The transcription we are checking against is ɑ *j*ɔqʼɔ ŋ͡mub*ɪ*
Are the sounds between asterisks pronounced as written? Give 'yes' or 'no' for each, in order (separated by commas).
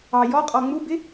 yes, yes